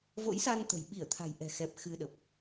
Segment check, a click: absent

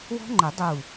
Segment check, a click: present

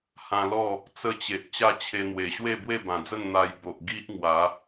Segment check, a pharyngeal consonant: absent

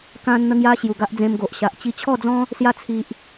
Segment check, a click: absent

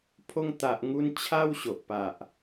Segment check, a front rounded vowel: absent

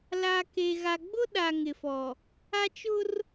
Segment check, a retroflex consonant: absent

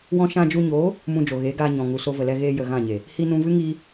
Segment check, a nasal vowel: present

